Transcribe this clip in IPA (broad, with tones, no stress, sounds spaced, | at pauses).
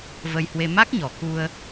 v ə˧ j h w e˧ m a˦˥ k̚ ɲ ɔ˨˩ k u˧ ə̯